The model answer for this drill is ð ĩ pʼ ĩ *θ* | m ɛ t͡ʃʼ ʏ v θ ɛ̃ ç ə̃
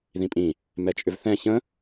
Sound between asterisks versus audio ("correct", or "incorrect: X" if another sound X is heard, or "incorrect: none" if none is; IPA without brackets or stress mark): incorrect: none